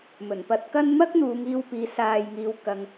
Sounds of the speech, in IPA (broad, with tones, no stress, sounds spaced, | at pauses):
m ɵ˨˩ n p ɐ˧ t̚ k ɐ˥ n m ɐ˥ k̚ n̪ uː˨˧ ŋ iː˧ w p iː˨˧ s aː˨ j ŋ iː˨ w k ɐ˨ ŋ